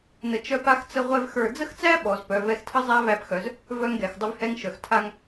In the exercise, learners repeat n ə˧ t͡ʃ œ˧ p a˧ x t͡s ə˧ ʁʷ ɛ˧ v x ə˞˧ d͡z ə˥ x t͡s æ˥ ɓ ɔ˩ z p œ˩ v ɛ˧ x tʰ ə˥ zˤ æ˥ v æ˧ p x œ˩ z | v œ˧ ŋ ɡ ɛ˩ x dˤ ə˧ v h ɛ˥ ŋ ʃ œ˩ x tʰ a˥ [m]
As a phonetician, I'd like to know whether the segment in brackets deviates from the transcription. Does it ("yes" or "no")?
yes